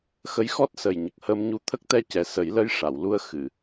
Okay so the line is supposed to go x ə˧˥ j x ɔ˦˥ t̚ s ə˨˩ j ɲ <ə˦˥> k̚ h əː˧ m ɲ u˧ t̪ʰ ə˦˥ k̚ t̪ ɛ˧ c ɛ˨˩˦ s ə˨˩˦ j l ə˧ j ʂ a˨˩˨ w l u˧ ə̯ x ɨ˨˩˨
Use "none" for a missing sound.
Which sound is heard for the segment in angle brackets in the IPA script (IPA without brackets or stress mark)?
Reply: ə˨˩